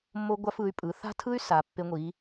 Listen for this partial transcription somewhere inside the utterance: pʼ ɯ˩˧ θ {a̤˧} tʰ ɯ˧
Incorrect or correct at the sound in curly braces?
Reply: correct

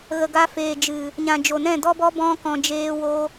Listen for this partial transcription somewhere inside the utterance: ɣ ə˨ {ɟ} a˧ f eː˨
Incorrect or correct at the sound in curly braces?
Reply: incorrect: ɡ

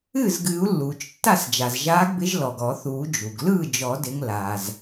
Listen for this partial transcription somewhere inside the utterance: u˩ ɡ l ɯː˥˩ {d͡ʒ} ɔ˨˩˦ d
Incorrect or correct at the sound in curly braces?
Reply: correct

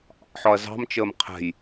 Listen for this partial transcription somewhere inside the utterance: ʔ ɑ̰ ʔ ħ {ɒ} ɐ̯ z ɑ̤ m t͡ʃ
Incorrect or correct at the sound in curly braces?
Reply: correct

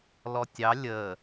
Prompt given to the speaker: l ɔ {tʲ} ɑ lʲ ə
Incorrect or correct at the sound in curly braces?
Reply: correct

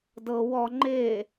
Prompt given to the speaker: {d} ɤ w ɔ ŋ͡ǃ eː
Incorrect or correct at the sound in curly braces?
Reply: correct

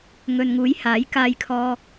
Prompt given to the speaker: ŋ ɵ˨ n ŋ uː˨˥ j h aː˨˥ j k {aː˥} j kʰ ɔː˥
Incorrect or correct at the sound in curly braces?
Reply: correct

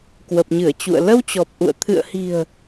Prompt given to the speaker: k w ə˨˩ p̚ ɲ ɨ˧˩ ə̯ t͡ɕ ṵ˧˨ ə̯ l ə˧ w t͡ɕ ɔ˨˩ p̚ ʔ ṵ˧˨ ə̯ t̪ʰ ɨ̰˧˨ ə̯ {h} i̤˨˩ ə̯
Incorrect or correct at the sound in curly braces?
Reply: correct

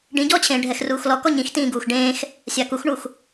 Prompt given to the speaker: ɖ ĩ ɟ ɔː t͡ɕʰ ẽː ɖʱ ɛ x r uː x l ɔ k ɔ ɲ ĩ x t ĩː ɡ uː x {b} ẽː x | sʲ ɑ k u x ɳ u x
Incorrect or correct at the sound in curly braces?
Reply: incorrect: ɖ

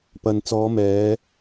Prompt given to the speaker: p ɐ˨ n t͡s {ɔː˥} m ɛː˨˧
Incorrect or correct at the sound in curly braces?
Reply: incorrect: ɔː˨˧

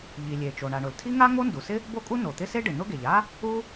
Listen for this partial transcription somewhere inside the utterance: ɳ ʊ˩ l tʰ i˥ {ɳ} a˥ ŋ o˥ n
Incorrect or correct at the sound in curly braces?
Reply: incorrect: ŋ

